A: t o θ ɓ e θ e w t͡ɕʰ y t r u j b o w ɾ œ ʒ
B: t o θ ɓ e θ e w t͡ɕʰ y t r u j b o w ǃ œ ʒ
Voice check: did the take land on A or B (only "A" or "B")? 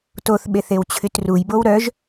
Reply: A